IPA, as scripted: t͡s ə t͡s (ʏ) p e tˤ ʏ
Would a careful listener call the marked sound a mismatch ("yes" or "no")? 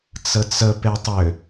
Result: yes